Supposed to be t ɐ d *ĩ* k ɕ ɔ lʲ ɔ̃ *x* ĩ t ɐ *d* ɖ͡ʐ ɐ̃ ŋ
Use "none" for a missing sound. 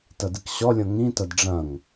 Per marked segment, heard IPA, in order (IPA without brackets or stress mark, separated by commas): i, ŋ, d